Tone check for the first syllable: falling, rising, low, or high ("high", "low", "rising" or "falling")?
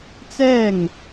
falling